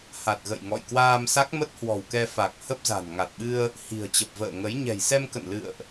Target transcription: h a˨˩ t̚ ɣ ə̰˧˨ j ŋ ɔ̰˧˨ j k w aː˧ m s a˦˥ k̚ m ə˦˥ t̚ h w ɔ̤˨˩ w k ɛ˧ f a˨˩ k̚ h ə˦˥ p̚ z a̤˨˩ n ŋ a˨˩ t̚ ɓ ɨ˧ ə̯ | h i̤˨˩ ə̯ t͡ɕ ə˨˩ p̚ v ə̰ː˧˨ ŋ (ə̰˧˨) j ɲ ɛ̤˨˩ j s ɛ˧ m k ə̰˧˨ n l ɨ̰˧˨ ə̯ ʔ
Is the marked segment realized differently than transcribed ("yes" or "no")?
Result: yes